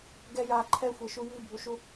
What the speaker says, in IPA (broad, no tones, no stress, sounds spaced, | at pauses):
ɡ ɛ j a ǃʰ ɛ xʷ e ʃ u j i bʱ u ʃ u